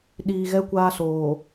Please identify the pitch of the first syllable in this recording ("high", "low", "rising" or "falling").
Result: low